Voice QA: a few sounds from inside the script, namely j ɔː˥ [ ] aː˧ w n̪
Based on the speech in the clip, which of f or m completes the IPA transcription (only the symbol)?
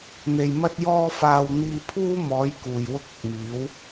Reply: f